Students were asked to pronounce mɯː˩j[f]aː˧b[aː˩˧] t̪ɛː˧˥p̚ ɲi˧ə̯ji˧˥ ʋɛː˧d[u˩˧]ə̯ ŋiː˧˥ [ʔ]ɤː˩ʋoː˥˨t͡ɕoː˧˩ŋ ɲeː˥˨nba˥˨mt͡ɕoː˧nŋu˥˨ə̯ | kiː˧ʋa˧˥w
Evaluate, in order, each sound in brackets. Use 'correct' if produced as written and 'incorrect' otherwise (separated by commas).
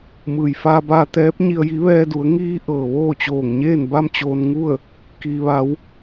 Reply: correct, incorrect, correct, correct